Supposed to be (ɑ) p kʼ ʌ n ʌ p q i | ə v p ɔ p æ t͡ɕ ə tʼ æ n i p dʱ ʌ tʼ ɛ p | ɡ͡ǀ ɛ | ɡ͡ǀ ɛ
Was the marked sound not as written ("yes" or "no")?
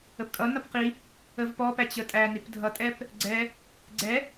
yes